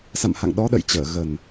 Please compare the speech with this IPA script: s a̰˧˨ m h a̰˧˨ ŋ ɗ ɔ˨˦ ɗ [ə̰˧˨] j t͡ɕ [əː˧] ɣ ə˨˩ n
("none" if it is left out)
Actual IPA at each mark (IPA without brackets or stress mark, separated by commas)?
ə̰˧˨, əː˧˩